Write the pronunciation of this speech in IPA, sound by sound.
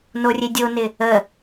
n o rʲ e dʲ o n ɪ | ə

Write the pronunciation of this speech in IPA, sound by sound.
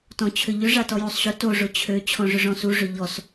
t ɔ̃ t͡ɕʰ ʏ ʎ ʏ ʐ a t ɔ j u sˤ ɕ ʊ t o ʐ ʊ t͡ɕʰ ø t͡ɕʰ ɔ̃ ʐ ʏ ʐ ɔ̃ s u ʐ ʏ ʎ ɔ s

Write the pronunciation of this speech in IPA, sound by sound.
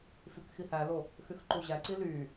f y k x i h æ l o | x y x ǃ u ʑ æ ǀ i l y

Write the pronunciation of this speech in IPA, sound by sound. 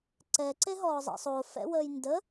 ǀ ɛ ǀ e ɦ ɔː zˤ ɛ̰ sˤ o f ɛ̰ w əː j n d ə

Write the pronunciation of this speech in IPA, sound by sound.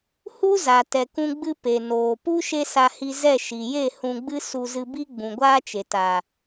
h u˦ z a˨ t ɛ˨ k ũ˧ ɡ͡b ɨ˧ p e˨ n oː˨ p u˦ ʃ e˦ s a˧ h i˧ z ɛ˦˨ ʃ i˨ j e˦˨ h ũ˧ ɡ͡b ɨ˦ s u˧ z ɨ˧ b i˦ ɡ͡b ũ˨ ɡʷ aː˦ t͡ʃ e˨ t a˨

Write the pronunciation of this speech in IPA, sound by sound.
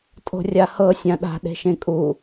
tʼ o̤ rʲ a h ɤ sʲ ã ɗ a̤ ɗ e̤ ʃ ẽ kʼ u

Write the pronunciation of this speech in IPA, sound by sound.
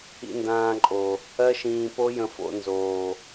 ḭ˧ n d ãː˧ ǃʼ o˨ | ɜ˦ ʃ ĩː˧ p o˦ j ə̃˧ f o̰˧ n z oː˨

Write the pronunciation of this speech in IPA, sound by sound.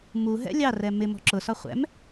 m u ɦ ɛ̰ lʲ ɑ r ɛ m ɪ m ɔ̤ ǁ ʊ s ɒ χʷ ɛ̰ m

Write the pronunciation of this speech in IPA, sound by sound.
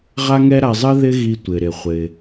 ʁ a˥ ŋ ɛ˥ ɾ a˧ zˤ ɨ˥ ð ɪ˥ ɣ i˧ tʷ ɪ˩ ɾ ɪ˩ χʷ ɪ˩

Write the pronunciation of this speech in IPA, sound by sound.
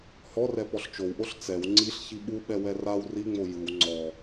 h ɔ r ɛ p ɔ ɬ t͡ʃ o w ʔ o ɬ t͡s ɛ w ŋ͡ǀ i ɬ ç i ɓ u ɓ ɛ w ɛ r a w r i ŋ͡m o j ɯ w ŋ͡ǀ ɔ

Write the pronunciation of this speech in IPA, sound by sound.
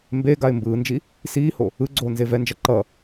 m b e ɡ a ɪ̯ m b ɯː n d͡ʒ i | s iː h o | ɯ ɡ͡ǀ oː n z e v ɛ n d͡ʒ ʌ ǃ ʌ

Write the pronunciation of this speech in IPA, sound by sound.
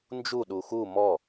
n d͡ʒ u ɗ u x u m ɔ

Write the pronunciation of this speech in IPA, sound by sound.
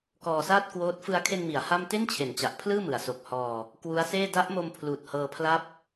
k ɔː˧ s aː˥˩ t̚ k w oː˦˥ t̚ f ɯ˧ a̯ kʰ e˧ n m i˩˦ a̯ h a˥˩ m t e˥˩ n t͡ɕʰ e˩˦ n t͡ɕ a˨˩ ʔ pʰ l ɯː˥˩ m ɯ˩˦ a̯ s o˨˩ k̚ h ɔː˧ | k w u˦˥ a̯ s eː˥˩ d a˦˥ ʔ m o˧ m pʰ l uː˨˩ t̚ h ɤː˧ pʰ l a˥˩ p̚

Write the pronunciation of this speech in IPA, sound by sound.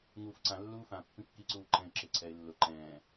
ŋ uː f ǀ ã lː uː f ã pː ĩ kː i ǀ uː ǃ ɛ̃ ɪ̯ ǁ ɪː ǀʰ ɛ ɪ̯ lː ʊ ǃ ɛ̃ː

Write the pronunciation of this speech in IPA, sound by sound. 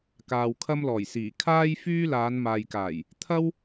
k aː˨ w kʰ ɐ˥ m l ɔː˨˩ j s iː˨˩ kʰ aː˥ j f yː˥ l aː˨˧ n m aː˨ j k aː˨˩ j | t̪ʰ ɐ˥ w

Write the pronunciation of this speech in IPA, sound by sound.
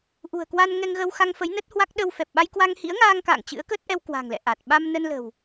ʔ ṳ˨˩ ə̯ k w a˧ n ŋ ɛ˧ ŋ ɣ ə˧ w x a˧ ŋ f ə˨˦ j n ə˦˥ t̚ h w a˦˥ k̚ ɗ ə˧ w f ɛ˨˩ p̚ ɓ a˧ j k w a˧ ŋ h ḭ˧˥ ə̯ ŋ aː˧ ŋ k a̰ː˧˨ ŋ t͡ɕ ɨ̰˧˥ ə̯ k ə˦˥ t̚ ʔ ɛ˧ w k w a̤˨˩ ŋ l ɛ̰˧˨ ʔ a˨˩ t̚ ɓ a˧ m n ə˧ n l ə̤˨˩ w

